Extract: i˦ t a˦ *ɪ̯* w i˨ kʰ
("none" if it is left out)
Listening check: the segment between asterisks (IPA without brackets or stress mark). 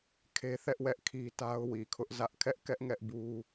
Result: ʊ̯